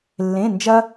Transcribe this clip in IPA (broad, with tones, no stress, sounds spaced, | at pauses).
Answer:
lː ẽ˧˥˧ n d͡ʒ ɐ˥